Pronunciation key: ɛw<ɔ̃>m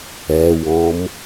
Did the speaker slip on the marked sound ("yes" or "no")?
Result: no